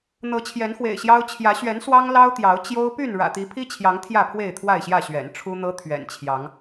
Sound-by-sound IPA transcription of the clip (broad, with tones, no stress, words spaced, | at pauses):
n̪ɤ˨˦t͡ɕʰjɛ˨˦nxwḛ˨˩ɪ̯ ɕjɑ˦ʊ̯ t͡ɕʰjä˨˦ ɕɥɛ˨˦n swɑ˦ŋlɑ˦ʊ̯t̪jɑ˨˦ʊ̯ t͡ɕjo˦ʊ̯ py˥˨n ɻä̰˨˩t̪i˨˦pʰi˦t͡ɕʰjɑ˨˦ŋ t̪ʰjä˥˨pʰwe˥˨ɪ̯t̪ʰwa˥˨ɪ̯ɕjä˥˨ ɕɥɛ̰˨˩nʈ͡ʂʰu˦n̪ɤ˦ t̪ʰɥɛ̰˨˩nt͡ɕʰjɑ˨˦ŋ